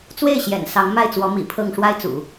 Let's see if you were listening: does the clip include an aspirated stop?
yes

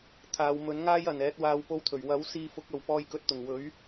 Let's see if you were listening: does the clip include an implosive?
no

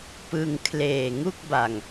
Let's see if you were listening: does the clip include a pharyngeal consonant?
no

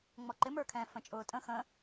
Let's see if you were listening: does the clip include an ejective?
yes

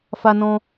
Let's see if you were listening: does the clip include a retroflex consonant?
no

